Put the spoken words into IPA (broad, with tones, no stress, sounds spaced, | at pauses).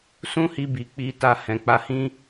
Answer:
s ũ˦ h i˧ b i˨ k͡p i˧ t a˧ h ɛ̃˨ k͡p a˧ h ĩ˦